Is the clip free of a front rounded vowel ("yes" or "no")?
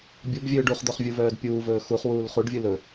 no